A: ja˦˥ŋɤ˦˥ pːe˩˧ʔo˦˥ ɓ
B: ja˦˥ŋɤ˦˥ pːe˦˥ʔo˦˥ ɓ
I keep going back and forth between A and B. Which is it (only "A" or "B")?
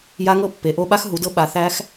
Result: A